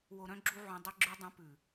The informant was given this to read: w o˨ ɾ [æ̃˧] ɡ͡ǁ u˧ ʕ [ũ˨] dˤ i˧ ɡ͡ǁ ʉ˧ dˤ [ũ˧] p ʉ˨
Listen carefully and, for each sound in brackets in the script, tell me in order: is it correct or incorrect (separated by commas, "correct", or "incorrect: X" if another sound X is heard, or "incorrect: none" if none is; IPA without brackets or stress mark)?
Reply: incorrect: œ̃˧, correct, incorrect: ũ˨˦